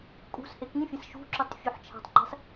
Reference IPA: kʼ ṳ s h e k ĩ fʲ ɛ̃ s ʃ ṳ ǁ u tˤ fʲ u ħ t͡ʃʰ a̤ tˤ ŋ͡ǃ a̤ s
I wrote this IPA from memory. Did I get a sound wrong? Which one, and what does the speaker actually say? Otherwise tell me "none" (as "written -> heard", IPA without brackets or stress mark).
none